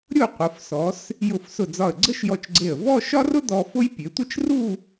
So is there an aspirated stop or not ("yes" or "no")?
no